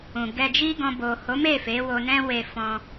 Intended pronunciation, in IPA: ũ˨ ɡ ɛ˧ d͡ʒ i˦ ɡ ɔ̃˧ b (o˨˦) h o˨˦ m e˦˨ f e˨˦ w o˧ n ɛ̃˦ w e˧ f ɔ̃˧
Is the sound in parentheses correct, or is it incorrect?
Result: incorrect: o˨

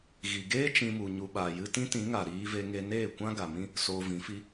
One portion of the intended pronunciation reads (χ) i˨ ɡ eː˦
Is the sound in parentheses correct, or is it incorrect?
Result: incorrect: ɣ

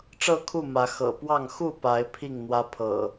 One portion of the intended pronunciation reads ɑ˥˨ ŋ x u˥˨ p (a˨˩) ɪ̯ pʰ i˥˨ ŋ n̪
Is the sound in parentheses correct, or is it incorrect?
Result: incorrect: a˨˦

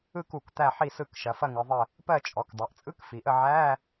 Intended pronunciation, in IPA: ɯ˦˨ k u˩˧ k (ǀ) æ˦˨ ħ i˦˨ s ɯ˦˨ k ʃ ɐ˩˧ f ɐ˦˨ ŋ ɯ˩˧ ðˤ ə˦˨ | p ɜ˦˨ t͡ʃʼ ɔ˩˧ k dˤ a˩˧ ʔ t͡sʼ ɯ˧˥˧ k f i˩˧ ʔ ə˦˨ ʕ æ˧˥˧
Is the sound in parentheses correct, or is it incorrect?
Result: incorrect: t̪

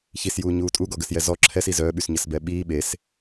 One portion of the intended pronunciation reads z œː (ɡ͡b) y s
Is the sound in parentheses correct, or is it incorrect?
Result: incorrect: ɓ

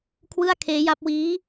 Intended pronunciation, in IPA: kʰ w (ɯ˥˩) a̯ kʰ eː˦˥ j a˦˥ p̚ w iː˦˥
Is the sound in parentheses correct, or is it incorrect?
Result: correct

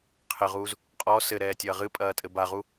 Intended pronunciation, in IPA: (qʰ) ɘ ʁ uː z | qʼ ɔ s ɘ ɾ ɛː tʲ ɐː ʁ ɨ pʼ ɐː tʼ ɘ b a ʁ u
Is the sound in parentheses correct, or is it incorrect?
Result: correct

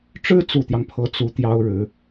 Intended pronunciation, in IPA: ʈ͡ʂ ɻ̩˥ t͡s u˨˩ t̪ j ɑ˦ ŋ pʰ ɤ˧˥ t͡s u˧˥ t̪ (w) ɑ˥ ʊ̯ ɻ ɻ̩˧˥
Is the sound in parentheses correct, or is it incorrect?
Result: incorrect: j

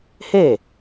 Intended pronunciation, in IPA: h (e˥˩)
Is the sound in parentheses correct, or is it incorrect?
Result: correct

